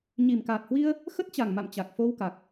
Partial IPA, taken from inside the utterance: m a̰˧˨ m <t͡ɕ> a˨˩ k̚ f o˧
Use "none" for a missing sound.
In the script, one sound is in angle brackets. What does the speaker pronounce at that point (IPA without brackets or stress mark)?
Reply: t͡ɕ